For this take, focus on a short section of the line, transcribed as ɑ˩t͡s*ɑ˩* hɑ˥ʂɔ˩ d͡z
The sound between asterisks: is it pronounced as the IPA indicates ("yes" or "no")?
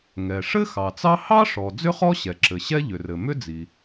no